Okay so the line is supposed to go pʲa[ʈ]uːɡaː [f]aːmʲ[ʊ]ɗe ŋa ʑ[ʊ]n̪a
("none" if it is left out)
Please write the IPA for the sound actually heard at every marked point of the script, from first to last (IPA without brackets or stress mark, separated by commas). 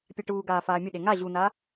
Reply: ʈ, f, ʊ, u